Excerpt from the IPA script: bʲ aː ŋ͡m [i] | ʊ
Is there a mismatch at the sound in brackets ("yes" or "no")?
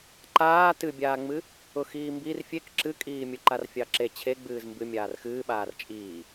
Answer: yes